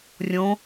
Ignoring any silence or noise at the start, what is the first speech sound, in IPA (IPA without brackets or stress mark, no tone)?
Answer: rʲ